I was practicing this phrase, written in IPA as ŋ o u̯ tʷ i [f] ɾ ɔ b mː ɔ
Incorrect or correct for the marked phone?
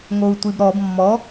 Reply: incorrect: b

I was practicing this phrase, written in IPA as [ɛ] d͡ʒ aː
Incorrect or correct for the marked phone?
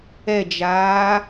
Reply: correct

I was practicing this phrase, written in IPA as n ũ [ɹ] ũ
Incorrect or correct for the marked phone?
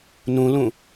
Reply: incorrect: l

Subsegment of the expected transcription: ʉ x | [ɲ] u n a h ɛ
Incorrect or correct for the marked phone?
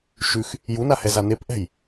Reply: incorrect: j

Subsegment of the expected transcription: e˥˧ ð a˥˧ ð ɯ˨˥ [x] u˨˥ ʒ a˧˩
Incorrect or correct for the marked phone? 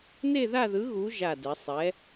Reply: incorrect: ɣ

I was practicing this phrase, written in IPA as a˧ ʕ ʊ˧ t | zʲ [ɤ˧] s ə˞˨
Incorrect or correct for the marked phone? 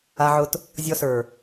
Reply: incorrect: ɔ˧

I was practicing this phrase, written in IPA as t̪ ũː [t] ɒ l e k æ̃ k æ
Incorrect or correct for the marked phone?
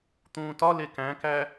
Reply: correct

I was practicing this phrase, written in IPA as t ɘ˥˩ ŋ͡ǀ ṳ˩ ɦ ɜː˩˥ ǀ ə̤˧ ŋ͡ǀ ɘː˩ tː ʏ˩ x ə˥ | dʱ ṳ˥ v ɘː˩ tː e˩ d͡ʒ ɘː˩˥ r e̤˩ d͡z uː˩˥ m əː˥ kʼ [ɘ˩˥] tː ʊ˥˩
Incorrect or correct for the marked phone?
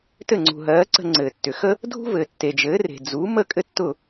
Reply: incorrect: ɘ˥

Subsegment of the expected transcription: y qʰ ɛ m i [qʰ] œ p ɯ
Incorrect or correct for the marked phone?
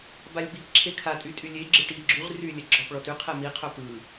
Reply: correct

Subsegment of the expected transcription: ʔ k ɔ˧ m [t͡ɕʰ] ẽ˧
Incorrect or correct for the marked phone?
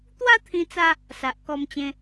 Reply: incorrect: t͡ɕ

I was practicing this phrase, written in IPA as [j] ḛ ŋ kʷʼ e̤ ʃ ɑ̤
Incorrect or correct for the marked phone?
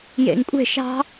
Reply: correct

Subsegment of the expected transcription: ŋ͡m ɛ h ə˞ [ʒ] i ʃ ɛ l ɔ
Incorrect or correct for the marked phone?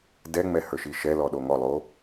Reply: incorrect: ʃ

